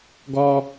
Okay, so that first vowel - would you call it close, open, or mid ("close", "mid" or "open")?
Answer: mid